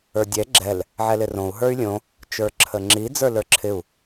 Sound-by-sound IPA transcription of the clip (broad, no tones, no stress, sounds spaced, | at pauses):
ə˞ dʲ ɛ ɡ͡ǁ ɛ l | ʕ ɛ l ɪ r õ u̯ ɦ ə˞ y̯ lʲ õ | t͡ʃ ə˞ ǁʰ ə ŋ͡ǁ i d͡z ə˞ l ə˞ ǁʰ ɪ u̯